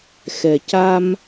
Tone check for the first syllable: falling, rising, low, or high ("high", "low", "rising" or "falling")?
low